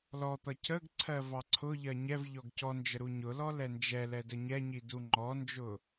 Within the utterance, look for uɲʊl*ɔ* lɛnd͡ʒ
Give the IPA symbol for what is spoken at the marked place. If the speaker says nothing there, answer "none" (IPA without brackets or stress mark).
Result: ɔ